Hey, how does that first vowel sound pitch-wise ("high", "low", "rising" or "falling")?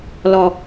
low